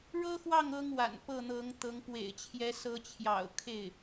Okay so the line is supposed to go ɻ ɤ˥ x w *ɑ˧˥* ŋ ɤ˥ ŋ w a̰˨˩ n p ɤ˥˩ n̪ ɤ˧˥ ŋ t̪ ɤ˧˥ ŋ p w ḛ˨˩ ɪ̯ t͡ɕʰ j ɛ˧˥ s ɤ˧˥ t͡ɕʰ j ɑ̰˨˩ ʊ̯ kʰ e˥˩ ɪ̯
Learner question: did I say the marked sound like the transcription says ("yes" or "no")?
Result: no